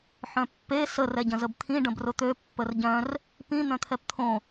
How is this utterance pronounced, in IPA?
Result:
ħ œ̃ pː e s ə r ɛ ɟ ə̃ z ə b t̪ʰ ĩ ɖ ə̃ b r ʊ t̪ ø pː ə r ɟ œ̃ r | p ĩ n̪ œ̃ t̪ʰ ɛ p t̪ʰ õ

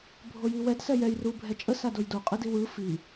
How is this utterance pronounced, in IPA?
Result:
bʱ o j i w ɛ d s ɛ j ɛ j r u bʱ ɛ t͡ʃʼ ə s a d o j d o qʼ ɯ d i w ɯ f i

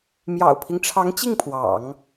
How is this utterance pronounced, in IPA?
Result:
m j ɑ̰˨˩ ʊ̯ pʰ i˦ ŋ ʈ͡ʂʰ ɑ˧˥ ŋ t͡ɕ i˥˩ ŋ pʰ w ɑ̰˨˩˦ ŋ

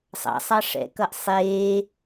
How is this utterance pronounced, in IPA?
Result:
sˤ ɑ̰ sˤ ɑ ʂ ɛ̰ k ʌ ʔ sˤ eː

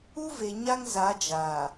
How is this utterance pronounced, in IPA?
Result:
u˦ v e˨ ɲ a˦ ŋ z a˨˦ d͡ʒ a˨

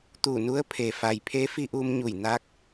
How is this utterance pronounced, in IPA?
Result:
t̪ uː˧˩ n u˧˥ ə̯ pʰ e˩ f a˩ j pʰ e˧˥ f i˧ ʔ uː˧ m ɲ u˧˩ j n aː˧ k̚

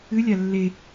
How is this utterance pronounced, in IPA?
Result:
ɨ lʲ a lː e

